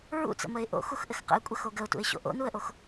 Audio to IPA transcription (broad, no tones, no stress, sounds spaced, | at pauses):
ɹ ṵ t͡s ə̰ m ə ɪ̯ ʔ o̰ x u x ʔ ɘ x q ə̰ ɪ̯ kʷʼ ə x o ɡ ə ʊ̯ t ṵ ɪ̯ ɕ o̰ ʔ o̰ n u ə̯ ʔ o x